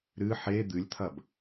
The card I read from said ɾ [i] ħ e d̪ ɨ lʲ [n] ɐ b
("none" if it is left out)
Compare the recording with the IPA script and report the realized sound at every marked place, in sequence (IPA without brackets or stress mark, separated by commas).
ɨ, t̪ʰ